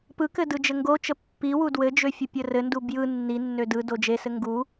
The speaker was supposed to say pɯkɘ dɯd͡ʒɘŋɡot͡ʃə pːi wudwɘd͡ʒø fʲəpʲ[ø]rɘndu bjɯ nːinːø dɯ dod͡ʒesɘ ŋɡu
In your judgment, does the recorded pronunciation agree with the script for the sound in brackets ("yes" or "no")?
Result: no